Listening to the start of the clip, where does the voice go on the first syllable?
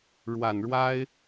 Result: low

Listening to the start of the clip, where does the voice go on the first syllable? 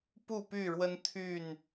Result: falling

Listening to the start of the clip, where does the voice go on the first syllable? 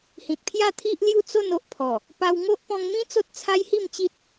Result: low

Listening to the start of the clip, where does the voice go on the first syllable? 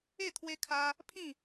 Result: falling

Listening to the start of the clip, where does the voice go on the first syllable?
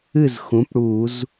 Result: falling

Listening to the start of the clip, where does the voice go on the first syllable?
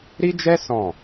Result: high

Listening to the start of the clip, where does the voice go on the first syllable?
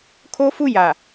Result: high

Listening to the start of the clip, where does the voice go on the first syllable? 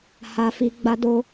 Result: low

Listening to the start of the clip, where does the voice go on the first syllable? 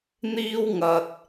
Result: high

